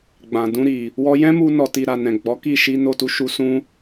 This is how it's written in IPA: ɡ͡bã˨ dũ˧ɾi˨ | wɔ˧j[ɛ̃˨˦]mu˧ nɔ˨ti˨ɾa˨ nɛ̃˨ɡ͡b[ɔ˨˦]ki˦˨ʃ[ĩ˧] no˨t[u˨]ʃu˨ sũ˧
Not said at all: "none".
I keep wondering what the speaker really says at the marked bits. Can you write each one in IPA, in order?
ɛ̃˦, ɔ˨˦, i˧, u˨

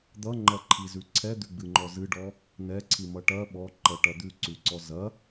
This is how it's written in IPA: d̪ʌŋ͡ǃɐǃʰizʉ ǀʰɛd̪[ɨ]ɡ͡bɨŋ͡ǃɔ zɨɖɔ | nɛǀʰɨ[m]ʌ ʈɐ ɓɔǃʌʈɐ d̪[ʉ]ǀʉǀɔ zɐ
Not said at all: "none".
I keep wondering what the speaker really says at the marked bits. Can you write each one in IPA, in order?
ʉ, m, ʉ

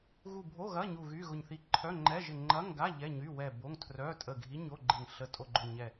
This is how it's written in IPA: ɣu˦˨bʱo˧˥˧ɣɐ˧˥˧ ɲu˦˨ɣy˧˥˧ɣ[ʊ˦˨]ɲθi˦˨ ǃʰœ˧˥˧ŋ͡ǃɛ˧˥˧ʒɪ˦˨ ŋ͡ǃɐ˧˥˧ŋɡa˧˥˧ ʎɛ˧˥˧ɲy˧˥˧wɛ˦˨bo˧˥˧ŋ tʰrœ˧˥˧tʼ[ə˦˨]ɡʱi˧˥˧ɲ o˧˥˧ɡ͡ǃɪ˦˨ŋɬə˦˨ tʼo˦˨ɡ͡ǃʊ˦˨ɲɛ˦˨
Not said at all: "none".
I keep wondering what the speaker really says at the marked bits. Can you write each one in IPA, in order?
ʊ˦˨, ə˦˨

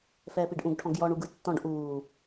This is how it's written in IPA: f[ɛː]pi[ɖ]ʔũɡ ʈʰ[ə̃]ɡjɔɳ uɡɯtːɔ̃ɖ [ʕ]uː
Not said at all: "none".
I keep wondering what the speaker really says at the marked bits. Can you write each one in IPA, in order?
ɛː, ɖ, ɔ̃, ʔ

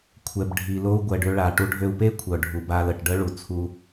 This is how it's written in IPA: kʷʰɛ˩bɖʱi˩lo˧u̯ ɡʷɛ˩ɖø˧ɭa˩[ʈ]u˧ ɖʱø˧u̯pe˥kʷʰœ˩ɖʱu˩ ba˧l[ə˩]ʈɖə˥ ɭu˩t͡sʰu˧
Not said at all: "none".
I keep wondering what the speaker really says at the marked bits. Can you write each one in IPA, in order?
ʈ, ə˩

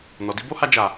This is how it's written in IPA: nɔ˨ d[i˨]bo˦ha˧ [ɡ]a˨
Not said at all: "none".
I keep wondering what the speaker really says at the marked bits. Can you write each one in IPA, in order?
i˧, d͡ʒ

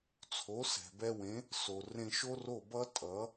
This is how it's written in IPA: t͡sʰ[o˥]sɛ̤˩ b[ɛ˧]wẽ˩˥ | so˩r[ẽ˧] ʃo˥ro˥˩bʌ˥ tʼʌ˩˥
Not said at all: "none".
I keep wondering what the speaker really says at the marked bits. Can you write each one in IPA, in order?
o˩˥, ɛ˧, ẽ˧

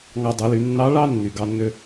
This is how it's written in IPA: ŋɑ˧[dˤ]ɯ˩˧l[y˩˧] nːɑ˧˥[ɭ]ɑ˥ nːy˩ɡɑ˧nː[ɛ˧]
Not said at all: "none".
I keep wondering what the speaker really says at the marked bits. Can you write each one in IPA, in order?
dˤ, y˩˧, ɭ, ø˧

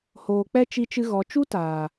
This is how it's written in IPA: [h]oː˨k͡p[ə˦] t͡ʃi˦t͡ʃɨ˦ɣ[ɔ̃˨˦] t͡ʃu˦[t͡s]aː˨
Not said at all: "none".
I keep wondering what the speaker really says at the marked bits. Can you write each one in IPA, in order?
h, ɛ˦, ɔ˨˦, t

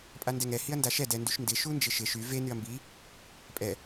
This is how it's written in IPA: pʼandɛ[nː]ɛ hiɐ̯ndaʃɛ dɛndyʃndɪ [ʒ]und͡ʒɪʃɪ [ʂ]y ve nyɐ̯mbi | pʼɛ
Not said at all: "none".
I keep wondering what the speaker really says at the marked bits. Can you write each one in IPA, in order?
ŋ, ʃ, ʃ

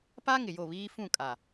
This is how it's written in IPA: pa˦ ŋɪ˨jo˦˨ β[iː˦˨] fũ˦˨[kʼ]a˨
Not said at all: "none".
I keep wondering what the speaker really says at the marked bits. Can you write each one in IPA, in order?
iː˦, kʼ

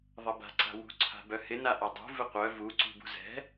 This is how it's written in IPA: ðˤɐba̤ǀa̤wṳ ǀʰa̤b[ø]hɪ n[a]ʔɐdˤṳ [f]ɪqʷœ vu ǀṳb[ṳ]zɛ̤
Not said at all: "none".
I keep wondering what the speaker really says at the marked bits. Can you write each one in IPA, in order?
œ, a, v, ṳ

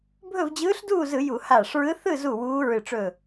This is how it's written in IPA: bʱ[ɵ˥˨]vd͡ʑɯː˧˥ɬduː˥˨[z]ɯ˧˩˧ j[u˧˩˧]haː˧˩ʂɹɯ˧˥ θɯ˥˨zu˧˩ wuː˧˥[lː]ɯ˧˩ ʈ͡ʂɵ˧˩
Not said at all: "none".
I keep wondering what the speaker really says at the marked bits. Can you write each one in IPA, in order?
ɵ˥˨, z, u˧˩˧, ɹ

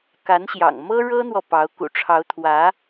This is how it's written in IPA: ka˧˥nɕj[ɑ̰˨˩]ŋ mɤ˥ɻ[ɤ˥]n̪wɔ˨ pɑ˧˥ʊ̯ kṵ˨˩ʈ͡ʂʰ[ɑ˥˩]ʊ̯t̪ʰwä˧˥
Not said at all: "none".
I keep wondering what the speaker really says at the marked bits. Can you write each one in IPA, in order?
ɑ̰˨˩, ɤ˥, ɑ˧˥

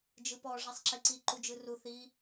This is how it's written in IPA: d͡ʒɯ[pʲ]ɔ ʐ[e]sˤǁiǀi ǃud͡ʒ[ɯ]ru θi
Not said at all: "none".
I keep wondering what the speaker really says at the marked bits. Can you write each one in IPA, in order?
p, ɛ, ɯ

